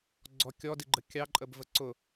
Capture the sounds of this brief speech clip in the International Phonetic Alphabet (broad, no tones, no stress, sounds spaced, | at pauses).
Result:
ɡ͡ǀ ɔ kʲ ɔ d i ɡ͡ǃ ə kʲ ɑ ǃʼ ə b v ə ǀ ʊ